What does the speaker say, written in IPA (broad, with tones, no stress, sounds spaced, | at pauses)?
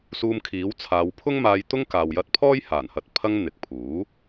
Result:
s uː˧ m kʰ iː˨˥ w t͡sʰ aː˨˧ w pʰ ʊ˥ ŋ m aː˧ j t̪ ʊ˥ ŋ k aː˨ w j ɐ˧ t̚ pʰ ɔː˥ j h aː˨˩ n h ɐ˨ t̚ pʰ ɐ˧ ŋ n̪ ɪ˨ k̚ pʰ uː˨˥